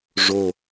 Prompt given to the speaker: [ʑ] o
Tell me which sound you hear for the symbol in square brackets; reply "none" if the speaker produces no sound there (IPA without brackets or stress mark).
ʐ